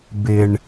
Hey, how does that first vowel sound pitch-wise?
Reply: low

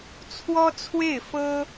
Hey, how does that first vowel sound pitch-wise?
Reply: high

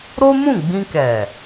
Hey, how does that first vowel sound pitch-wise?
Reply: high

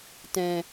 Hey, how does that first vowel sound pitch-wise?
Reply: low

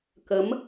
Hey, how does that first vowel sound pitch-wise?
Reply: rising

